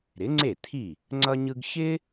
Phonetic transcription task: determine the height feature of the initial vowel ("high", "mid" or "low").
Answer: high